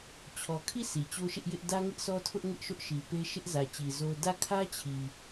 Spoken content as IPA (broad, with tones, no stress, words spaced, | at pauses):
t͡ɕʰɔ˨kʰi˦˨ sʰi˨t͡ɕo˦ʃɪ˦ʔjɪ˦ʔ dä˦ŋɪ˦ʔsɔ˦tʰʊ˦ʔ ŋɪ˦ʔʃʊ˦ʔʃi˨ pe˦ʃɪ˦ʔ zä˨t͡ɕi˨ zo˦ dä˦˨kʰä˦t͡ɕʰi˨